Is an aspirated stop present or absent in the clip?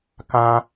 absent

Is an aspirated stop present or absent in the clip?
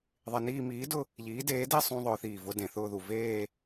absent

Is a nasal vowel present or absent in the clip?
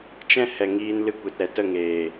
present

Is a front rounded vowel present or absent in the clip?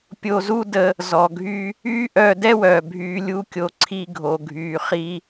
present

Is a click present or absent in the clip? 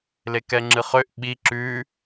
present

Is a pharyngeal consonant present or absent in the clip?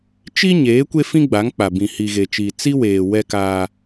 absent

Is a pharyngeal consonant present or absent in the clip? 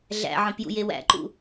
present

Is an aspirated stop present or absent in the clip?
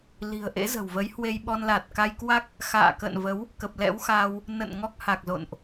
absent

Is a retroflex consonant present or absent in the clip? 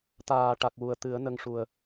present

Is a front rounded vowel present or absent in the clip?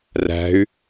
present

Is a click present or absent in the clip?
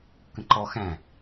present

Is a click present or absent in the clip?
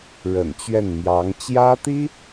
absent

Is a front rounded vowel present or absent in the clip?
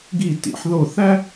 absent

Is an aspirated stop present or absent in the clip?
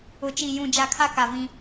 present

